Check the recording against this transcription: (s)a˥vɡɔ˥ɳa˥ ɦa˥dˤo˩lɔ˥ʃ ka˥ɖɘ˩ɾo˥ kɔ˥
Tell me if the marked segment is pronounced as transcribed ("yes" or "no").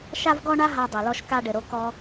no